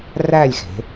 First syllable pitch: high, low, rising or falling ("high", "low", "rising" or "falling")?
falling